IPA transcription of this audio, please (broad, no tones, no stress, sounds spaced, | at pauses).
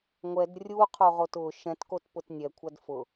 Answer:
ŋʷ ɛ d rʲ u qʰ o ʁ o t ʊ ʃ ɛ̃ t k o t p ʊ t nʲ ɛ kʷʰ a d f ʊ